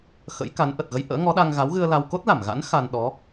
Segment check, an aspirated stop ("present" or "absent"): absent